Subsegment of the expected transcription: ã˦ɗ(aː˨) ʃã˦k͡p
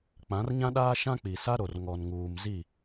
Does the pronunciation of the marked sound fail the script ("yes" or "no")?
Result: yes